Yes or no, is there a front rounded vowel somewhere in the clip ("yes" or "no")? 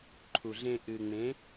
no